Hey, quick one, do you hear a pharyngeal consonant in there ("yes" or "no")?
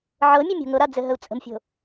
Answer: yes